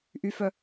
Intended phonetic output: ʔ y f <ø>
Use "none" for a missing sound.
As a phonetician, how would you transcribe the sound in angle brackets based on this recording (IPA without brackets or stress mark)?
œ